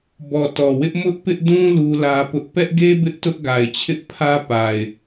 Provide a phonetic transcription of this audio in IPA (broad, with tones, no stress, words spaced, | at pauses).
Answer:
bɔ˨tɔ˨wɪ˦ʔ mʊ˦ʔpɪ˦ʔdũ˦ lu˦lä˦pʊ˦ʔ pɛ˦ʔɡe˦ bɪ˦ʔtʊ˦ʔ ɡa˨ɪ̯ t͡ɕʰɪ˦ʔpʰä˦pa˨ɪ̯